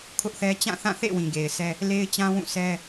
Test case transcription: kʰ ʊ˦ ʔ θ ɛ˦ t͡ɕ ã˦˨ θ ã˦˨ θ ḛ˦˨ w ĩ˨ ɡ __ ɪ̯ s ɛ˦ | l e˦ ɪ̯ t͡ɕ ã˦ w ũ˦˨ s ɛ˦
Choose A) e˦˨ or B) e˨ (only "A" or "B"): B